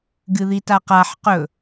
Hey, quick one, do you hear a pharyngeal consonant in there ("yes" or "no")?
yes